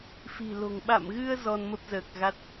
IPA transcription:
f i̤˨˩ l o̤˨˩ ŋ ɓ a̰˧˨ m ɣ ɨ˧ ə̯ z ɔ˧ n m ə˦˥ p̚ z əː˨˩ k̚ ɣ a˦˥ t̚

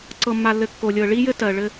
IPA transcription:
ǀ ɤ˨ mː a˨ lː ɘ˨ kː o˨ lʲ ɤ˨ ɭ i˦ j ɘ˦ t ɜ˨ ɭ ɘ˦

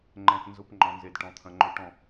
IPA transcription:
ŋ͡ǃ ɛ̃˨ t n z ʊ˦ p ŋ͡ǃ ɔ̃˨ n z e˨ d ʈ ɔ̃˨ t̪ʰ ɐ̃˨ ŋ͡ǃ ø˨ ʈ ɔ̃˨

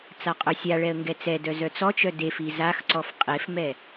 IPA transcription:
t͡s a qʼ œ sʲ a ɭ ɛ ə̯ ŋ ɡ ɛ t͡s ɛ d œ z œ t͡s ɔ t͡ʃ œ d e f i z a x ǀ ɔ f qʼ e f m ɛ

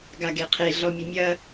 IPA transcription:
ɡ a ɡ e qʰ e ɮ ɔ mʲ ɘ mʲ ɐ

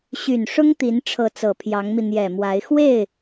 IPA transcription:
ɕ y˨˩ n ʂ ʊ˥ ŋ t̪ i˧˥ n ʈ͡ʂʰ ɤ˧˥ t͡s ɤ˨˩ pʰ j ɑ˧˥ ŋ m i˧ n̪ j ɛ˨˩ m w a˧˥ ɪ̯ x w e˥˩ ɪ̯

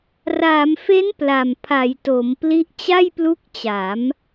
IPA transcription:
r aː˩˦ m f e˦˥ n p l a˨˩ m pʰ a˩˦ j t o˩˦ m p l i˦˥ ʔ t͡ɕ a˥˩ j p l u˦˥ k̚ t͡ɕ a˩˦ m

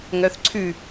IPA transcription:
ŋ œ θ ǀʰ ʉ

